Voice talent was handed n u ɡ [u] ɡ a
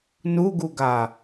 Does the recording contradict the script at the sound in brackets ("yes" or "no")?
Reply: no